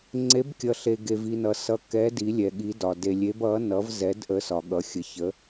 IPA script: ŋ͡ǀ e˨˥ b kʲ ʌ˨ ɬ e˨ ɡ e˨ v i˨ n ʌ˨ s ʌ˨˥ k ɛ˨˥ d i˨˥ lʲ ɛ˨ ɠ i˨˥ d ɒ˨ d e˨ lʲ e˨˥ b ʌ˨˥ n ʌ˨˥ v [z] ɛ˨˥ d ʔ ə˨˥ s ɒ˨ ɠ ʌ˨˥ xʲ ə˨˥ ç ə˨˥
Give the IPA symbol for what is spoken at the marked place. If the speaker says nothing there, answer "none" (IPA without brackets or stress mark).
z